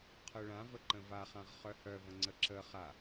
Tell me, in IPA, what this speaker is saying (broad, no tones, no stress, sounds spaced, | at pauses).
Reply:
qʰ œ ɭ ã v ə ǃ ə̃ v a χ ã ʁ χ œ h œ v ə̃ ŋ͡ǀ ə ǁ ə χ a